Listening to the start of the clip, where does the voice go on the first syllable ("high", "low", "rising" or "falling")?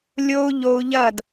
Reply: high